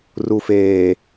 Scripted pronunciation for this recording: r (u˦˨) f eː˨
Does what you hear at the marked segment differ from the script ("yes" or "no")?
yes